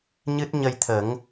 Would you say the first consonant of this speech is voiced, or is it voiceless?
voiced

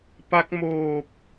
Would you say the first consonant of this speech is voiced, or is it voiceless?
voiceless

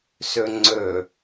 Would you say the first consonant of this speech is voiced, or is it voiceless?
voiceless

